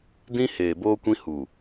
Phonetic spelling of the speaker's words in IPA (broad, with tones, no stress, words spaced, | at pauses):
dĩ˦ heː˨ boː˦kʷĩ˦ hu˨